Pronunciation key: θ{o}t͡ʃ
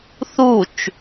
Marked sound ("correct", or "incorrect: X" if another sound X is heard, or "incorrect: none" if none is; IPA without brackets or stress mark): incorrect: u